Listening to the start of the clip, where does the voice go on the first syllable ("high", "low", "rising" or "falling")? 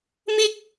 high